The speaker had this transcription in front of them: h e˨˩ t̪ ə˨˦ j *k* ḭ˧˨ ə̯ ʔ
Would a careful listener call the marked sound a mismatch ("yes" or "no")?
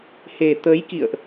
no